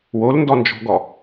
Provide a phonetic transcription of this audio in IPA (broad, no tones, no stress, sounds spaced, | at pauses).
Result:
w o l n d ɔ n d͡ʒ ɔ̤ ɡ ɔ